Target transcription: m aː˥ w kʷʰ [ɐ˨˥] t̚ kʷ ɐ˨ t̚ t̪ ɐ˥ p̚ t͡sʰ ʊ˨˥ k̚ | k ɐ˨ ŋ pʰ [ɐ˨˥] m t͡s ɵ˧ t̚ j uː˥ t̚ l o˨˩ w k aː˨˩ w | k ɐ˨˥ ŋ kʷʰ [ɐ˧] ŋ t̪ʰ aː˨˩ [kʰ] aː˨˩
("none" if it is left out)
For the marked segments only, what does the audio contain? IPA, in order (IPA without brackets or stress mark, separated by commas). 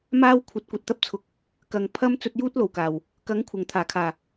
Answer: ɐ˨˥, ɐ˥, ɐ˨˩, kʰ